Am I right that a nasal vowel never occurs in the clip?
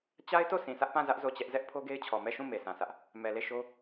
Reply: no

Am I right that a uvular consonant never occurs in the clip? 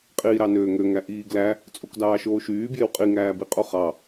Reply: no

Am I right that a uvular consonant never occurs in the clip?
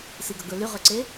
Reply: no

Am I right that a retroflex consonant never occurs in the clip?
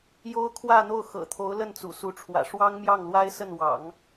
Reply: no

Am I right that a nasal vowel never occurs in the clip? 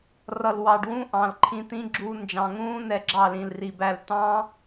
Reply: no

